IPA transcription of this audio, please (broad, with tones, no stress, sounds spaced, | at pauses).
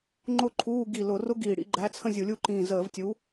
ŋ͡ǃ ʊ˥˧ ǃʰ uː˧˥˧ ɡ i˧˩ l ʊ˧˩˧ r ʊ˦˥ ɡ iː˧˩ ɽ ḭ˧˥˧ ɡ͡ǃ æ˧˥˧ t͡sʰ ə̃˥˧ zʲ u˧˩˧ lʲ u˦˥ ǃ ĩː˧˩ z əː˧˩˧ v tʲ u˨˥